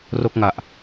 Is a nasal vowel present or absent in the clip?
absent